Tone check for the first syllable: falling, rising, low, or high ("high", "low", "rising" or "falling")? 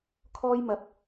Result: high